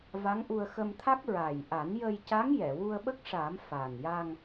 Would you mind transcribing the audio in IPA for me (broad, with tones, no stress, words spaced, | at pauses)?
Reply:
va˧˥ŋʔu˧ə̯ xə˧mt̪ʰa˦˥k̚ ɹa˨˩j ʔa˨˩˦njə˧jca˧˥ŋ jɛ˨˩˨wu˧ə̯ɓə˦˥k̚ʂa˨˩˦m fa˨˩n ja˧ŋ